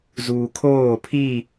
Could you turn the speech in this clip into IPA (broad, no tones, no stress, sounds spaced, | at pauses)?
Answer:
z uː kʰ oː pʰ i